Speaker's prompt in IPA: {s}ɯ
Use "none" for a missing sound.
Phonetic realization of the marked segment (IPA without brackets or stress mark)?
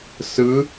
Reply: s